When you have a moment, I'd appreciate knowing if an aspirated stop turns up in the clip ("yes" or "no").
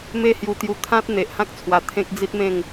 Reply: yes